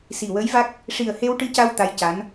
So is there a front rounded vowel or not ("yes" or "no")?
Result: no